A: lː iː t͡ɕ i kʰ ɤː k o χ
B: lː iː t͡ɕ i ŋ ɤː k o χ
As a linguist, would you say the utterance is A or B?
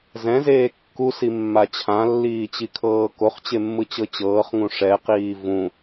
A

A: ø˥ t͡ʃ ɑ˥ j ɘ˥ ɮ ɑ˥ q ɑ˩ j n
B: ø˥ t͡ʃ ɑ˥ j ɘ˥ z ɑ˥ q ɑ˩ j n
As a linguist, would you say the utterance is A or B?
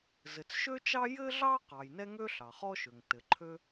A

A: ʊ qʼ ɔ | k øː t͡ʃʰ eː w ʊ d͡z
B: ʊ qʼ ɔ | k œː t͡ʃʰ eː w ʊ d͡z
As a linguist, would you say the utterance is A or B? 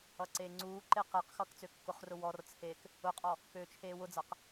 A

